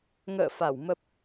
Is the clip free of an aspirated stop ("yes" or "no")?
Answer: yes